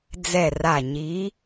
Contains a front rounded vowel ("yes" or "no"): no